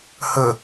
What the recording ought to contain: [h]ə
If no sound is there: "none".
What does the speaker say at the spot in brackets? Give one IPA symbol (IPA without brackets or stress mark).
h